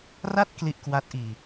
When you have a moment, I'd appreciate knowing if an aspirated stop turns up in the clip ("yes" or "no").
no